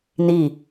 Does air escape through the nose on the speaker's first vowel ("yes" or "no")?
no